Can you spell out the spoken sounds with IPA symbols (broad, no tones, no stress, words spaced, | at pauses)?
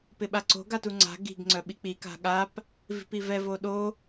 pɪɓaǀo̤ ɡatuŋ͡ǀa̤ ɡi̤ɡ ŋ͡ǀœɓik͡pi ka̤ɠap | vi̤pivɛ voɗo